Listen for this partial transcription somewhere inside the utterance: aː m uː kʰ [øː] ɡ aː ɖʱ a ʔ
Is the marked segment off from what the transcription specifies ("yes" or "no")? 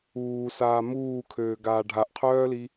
no